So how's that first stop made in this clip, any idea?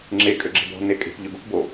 click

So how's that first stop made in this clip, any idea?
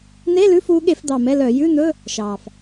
implosive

